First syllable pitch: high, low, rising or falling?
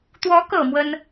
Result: rising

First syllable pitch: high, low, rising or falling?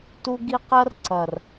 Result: high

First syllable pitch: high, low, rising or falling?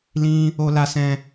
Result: high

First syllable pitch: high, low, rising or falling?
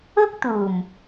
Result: high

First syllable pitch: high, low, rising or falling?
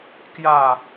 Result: falling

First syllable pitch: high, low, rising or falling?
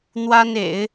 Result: high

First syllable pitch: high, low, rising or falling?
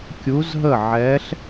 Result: rising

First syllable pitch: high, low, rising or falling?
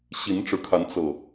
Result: rising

